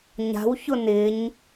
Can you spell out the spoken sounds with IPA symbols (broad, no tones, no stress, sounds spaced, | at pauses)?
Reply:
ɲ a̤ w ç ʊ n ɪ ɲ